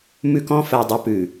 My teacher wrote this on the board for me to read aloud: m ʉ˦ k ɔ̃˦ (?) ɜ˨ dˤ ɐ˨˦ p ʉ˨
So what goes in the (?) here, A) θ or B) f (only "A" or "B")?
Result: B